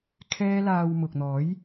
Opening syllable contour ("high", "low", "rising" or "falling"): high